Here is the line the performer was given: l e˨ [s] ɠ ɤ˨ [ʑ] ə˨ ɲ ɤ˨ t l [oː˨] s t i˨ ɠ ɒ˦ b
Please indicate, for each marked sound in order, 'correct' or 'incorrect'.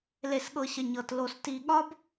correct, incorrect: ɕ, incorrect: o˨

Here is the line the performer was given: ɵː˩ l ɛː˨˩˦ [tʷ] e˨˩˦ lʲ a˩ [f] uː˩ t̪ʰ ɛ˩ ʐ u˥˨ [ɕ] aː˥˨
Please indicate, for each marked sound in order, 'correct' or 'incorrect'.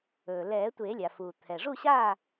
correct, correct, correct

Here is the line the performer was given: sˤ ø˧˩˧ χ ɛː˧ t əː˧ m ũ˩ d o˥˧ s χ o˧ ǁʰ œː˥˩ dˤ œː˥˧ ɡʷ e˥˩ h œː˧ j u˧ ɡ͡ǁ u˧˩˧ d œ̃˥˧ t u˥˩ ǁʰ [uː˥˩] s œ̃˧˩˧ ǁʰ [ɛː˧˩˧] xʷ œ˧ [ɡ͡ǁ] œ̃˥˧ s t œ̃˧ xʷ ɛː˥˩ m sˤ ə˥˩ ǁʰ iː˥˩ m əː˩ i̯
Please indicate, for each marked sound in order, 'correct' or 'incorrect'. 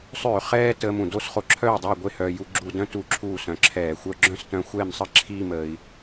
correct, correct, correct

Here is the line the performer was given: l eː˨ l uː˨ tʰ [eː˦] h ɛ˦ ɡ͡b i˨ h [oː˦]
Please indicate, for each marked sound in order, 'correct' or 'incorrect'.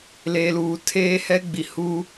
correct, incorrect: uː˦

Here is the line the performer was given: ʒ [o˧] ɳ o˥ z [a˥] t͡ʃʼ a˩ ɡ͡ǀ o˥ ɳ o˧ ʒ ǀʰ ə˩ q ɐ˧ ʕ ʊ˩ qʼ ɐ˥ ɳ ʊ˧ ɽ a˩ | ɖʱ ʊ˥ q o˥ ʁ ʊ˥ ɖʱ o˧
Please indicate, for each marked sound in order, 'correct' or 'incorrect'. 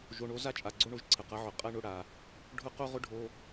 correct, correct

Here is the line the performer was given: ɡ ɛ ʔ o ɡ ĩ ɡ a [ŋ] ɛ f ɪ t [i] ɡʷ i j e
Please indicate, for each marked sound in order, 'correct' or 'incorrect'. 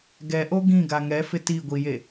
correct, correct

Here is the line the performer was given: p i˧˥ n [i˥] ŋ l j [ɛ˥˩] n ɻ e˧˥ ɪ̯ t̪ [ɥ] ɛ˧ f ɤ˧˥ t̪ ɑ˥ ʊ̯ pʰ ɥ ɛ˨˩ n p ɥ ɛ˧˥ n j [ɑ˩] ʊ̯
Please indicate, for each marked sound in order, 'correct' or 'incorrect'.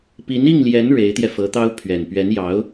incorrect: i˥˩, incorrect: ɛ˧˥, incorrect: j, incorrect: ɑ˧˥

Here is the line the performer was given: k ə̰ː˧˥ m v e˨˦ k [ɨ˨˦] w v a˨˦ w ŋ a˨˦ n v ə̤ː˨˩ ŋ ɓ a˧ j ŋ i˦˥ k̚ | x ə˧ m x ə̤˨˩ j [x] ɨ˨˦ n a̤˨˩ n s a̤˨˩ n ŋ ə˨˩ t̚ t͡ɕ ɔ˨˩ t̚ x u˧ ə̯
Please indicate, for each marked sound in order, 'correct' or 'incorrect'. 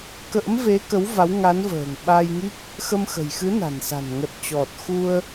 incorrect: ə˨˦, correct

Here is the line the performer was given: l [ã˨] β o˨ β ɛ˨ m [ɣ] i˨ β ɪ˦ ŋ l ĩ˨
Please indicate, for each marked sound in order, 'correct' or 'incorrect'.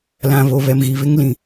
correct, correct

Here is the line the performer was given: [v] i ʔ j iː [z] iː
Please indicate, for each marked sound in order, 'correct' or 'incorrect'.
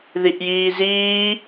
incorrect: ð, correct

